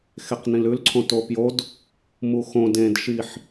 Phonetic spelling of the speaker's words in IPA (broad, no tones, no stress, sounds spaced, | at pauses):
x e q n ĩ l ʉ l ǀʰ õ t o p j o d | m u x õ d ẽ d ʃ i ħ